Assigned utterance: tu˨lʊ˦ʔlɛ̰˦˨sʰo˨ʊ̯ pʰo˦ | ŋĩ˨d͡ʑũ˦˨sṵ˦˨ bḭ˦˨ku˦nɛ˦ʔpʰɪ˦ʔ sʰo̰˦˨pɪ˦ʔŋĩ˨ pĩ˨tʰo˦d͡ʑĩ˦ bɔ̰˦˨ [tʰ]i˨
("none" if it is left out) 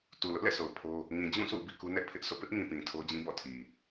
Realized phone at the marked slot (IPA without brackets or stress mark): tʰ